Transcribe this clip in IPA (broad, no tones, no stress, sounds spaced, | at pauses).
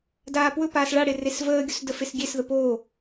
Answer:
d aː p w ɵ p aː s ɭ a ɽ e r e s v əː ɡʲ ɵ s d ə f e s ɡʲ e s ð ə p oː